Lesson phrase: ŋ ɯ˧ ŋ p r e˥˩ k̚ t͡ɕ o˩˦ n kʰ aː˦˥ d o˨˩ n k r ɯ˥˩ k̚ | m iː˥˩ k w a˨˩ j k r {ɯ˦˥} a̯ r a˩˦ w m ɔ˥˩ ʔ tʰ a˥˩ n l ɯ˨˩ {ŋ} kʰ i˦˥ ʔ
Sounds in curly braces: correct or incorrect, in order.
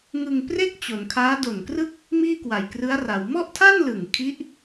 correct, correct

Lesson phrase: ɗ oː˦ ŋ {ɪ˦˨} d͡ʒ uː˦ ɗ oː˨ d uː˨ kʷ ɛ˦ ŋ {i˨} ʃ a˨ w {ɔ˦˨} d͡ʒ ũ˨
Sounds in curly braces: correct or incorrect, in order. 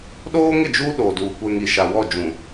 correct, correct, correct

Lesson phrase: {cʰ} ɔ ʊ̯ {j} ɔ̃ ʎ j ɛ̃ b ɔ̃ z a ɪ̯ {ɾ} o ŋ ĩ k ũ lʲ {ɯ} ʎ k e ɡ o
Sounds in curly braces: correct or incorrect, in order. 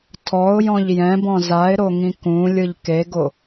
incorrect: tʰ, correct, correct, correct

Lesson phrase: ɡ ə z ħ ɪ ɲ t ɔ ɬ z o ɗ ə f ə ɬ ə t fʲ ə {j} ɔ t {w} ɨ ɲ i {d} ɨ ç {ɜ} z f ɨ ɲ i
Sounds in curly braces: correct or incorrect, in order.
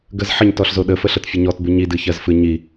incorrect: ɲ, incorrect: b, correct, correct

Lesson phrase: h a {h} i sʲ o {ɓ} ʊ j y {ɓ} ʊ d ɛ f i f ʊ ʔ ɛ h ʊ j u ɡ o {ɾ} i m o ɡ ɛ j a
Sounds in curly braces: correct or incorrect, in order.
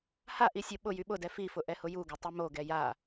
incorrect: ʔ, correct, correct, incorrect: tˤ

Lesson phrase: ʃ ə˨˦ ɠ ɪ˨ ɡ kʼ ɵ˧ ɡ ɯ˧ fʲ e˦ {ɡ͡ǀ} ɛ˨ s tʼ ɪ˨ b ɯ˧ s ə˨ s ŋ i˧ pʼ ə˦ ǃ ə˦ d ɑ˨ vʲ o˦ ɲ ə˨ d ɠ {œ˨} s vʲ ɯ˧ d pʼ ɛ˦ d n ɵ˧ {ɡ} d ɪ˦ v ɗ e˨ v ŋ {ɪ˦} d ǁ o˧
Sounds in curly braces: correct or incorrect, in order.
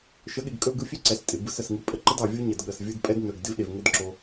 incorrect: ǀ, incorrect: ə˨, correct, incorrect: ə˦

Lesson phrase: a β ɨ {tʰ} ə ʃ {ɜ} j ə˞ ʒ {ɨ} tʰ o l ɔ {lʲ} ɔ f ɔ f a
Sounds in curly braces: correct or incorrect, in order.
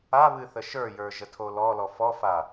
incorrect: θ, incorrect: ə˞, incorrect: ə, incorrect: l

